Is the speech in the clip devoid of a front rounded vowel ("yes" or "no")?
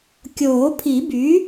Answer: no